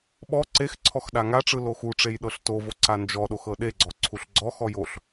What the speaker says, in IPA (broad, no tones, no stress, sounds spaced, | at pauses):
ɓ ɔ ǀ e x ǀʰ ɔ x ɗ a ŋ a ʈ͡ʂ ɯ l o x u ʈ͡ʂ e j ɗ ɤ ɬ t o v o ǀ a n d͡ʒ ɔ ɗ o x ɤ ɗ e ɡ͡ǀ ɔ ǀʰ u ɬ ɡ͡ǀ ɔ x ɔ j o ɬ